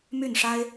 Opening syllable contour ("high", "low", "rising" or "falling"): falling